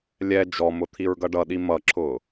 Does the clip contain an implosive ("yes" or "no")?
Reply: yes